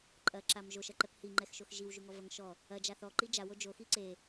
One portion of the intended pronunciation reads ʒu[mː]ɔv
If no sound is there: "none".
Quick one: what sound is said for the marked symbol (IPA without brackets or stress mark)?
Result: ŋ